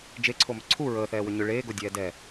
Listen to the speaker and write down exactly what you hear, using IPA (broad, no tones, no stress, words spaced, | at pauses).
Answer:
d͡ʒeǀʰomʏ ǀʰu ɹəːθɛːwʏ ɲʏ ɭeːɡodʲɛː dɛ